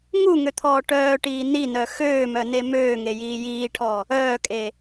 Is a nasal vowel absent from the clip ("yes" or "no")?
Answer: yes